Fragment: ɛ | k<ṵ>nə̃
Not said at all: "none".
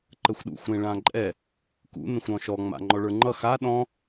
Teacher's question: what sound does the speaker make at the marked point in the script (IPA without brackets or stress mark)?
ṵ